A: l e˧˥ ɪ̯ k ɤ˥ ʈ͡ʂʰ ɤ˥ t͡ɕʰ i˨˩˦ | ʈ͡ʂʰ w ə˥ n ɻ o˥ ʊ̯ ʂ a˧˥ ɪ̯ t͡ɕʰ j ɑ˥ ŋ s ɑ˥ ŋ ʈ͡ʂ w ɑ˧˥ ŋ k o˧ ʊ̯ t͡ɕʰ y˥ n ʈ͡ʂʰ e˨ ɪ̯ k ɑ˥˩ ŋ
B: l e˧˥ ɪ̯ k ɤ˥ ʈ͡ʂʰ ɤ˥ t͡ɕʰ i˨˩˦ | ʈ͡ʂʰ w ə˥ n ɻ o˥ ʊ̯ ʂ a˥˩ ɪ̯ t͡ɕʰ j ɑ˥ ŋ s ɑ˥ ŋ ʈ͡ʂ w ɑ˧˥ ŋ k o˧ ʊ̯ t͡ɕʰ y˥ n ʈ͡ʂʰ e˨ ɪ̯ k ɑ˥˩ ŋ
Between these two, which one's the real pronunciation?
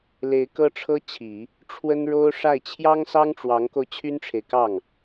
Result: B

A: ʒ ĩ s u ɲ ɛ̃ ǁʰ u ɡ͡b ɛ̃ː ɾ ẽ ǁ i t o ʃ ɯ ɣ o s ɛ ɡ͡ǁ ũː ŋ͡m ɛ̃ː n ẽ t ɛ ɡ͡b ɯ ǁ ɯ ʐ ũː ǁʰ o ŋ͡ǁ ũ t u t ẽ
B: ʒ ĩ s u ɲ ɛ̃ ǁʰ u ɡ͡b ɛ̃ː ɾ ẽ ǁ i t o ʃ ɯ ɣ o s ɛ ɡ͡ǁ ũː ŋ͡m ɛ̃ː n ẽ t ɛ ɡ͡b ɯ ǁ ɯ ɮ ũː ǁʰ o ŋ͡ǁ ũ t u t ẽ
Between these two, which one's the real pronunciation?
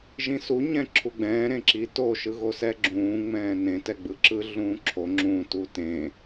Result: B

